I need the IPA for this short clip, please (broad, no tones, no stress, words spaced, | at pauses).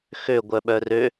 xø ɡʷœɓœrø